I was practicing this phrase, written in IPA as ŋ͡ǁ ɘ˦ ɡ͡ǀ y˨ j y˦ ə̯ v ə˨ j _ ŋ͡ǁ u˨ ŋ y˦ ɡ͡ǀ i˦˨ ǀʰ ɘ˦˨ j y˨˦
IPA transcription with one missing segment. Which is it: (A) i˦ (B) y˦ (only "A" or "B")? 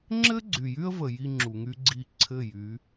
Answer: A